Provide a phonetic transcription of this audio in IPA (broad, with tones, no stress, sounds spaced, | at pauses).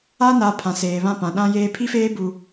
a˦ n a˨˦ pʰ ã˨ s eː˨ β ã˦˨ p ã˨ ɗ ã˦ j eː˦ pʰ i˦ f eː˦ b u˦